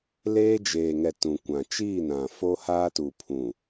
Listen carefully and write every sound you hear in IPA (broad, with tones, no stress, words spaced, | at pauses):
leː˦d͡ʒeː˨ŋɛ˨ tũ˨kʷã˨ t͡ʃiː˦˨nã˨ fo˦haː˦tu˨ pʰũ˨